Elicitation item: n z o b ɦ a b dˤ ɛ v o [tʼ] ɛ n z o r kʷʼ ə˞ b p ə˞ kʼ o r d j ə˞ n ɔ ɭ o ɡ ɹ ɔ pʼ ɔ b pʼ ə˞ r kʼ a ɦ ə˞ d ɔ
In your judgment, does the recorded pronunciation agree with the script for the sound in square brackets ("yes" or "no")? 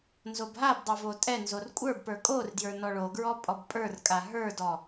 yes